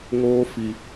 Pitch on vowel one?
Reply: high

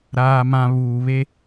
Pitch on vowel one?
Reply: high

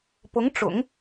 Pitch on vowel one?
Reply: rising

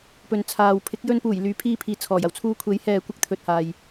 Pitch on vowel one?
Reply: low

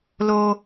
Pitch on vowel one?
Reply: high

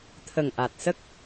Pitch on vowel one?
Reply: low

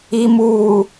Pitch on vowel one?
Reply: low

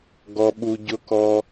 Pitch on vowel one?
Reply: low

